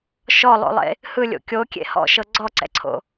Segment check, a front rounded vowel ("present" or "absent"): absent